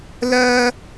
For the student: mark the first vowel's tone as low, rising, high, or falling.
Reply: high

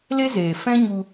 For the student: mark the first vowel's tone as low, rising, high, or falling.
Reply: high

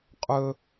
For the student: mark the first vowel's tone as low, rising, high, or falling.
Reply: high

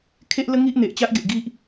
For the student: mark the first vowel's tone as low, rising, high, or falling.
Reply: high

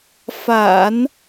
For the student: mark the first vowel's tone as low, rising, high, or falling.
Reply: low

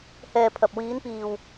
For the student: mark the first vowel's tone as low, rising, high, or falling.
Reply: low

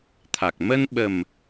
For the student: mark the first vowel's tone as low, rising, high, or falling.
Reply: low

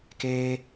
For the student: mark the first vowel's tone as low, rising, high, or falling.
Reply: high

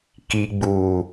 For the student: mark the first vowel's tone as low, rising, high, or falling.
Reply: low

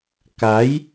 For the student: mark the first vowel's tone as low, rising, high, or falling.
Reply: rising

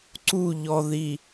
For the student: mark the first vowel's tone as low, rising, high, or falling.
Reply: falling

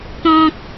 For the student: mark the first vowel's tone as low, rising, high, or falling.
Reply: high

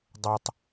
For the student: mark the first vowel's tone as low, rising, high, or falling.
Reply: low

